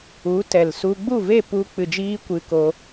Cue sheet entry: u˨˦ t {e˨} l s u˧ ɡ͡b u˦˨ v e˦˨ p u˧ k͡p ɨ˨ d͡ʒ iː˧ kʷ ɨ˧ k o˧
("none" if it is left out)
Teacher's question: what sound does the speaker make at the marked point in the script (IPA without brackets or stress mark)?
ɛ˨